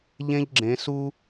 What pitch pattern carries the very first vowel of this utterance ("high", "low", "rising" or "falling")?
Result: high